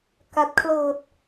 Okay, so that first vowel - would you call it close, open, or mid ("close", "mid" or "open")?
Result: open